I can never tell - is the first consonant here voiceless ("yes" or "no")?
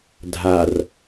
no